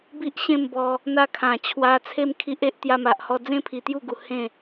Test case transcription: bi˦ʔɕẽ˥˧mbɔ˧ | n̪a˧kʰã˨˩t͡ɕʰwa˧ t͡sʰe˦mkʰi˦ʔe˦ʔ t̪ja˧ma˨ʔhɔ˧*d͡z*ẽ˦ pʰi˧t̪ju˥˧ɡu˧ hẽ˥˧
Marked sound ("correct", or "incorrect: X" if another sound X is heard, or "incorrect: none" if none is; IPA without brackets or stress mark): correct